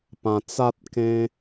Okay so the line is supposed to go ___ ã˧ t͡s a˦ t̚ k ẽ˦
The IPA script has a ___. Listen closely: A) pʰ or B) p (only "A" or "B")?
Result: B